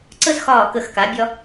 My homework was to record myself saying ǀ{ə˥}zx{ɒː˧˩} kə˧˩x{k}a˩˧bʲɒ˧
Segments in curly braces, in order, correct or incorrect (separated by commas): correct, correct, correct